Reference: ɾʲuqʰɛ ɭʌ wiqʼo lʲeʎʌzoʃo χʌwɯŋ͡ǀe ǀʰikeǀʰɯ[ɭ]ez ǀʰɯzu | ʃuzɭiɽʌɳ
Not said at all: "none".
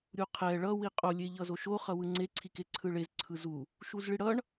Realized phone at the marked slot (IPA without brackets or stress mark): ɭ